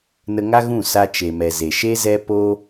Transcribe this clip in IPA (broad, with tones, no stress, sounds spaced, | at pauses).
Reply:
n ə˧ ŋ a˦ ɣ ũ˦˨ s a˧ t͡ʃ e˨ m ɛ˨ z e˨ ʃ e˦ z ɛ˦ p o˦